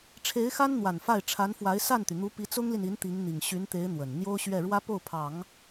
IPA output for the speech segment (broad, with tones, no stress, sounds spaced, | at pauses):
ʈ͡ʂʰ e˧˥ ɪ̯ x a˥ n n̪ w a˨˩ n f a˥˩ ɪ̯ ʈ͡ʂʰ a˧˥ n f w a˧˥ ɪ̯ s a˥˩ n t̪ y˩ n̪ u˧˥ p i˧˥ t͡s ʊ˥ ŋ l i˨ n i˧˥ n t̪ i˧˥ ŋ n̪ i˨˩ ŋ ɕ y˧˥ n t̪ e˧˥ ɪ̯ n̪ w ə˨˩ n n̪ j o˥ ʊ̯ ɕ ɥ ɛ˥˩ ɻ w ä˥ p o˥˩ ʊ̯ pʰ ɑ˨˩˦ ŋ